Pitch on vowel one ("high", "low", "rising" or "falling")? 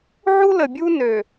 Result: high